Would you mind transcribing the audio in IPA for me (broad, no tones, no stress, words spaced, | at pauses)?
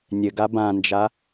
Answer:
nʲɘɡa bãnd͡ʒa